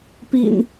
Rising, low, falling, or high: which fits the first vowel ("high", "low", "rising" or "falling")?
low